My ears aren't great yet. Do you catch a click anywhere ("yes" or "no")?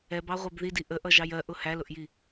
no